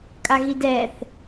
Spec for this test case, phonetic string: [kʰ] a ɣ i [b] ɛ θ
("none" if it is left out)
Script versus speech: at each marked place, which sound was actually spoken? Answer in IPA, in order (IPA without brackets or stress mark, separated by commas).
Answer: kʼ, d